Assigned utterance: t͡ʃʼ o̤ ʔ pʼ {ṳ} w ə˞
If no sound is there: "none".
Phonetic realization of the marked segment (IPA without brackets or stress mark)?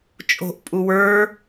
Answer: u